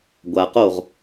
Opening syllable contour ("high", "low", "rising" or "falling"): low